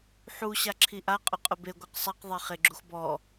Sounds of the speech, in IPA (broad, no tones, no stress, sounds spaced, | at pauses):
ħ u ɕ a ǁʰ i ʔ a qʼ ʊ qʼ ʊ b e ɡʷ ɛ q sˤ ɛ q ðˤ e χ e ɡ͡ǁ u x b ɔ